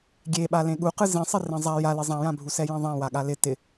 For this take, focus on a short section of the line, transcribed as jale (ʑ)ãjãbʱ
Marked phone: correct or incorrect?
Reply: incorrect